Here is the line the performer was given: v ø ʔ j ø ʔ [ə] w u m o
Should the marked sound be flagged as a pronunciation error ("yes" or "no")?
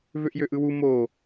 yes